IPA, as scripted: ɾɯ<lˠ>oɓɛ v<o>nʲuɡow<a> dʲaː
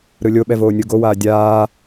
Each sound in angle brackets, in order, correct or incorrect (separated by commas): incorrect, incorrect, incorrect